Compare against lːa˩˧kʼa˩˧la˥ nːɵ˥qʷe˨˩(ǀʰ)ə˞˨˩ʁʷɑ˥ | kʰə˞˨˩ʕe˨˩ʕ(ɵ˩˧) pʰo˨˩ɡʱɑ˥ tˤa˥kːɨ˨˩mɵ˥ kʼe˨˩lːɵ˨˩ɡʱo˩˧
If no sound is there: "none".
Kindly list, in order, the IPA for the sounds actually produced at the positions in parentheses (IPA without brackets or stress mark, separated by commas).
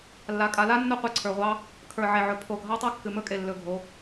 ǀʰ, ɵ˩˧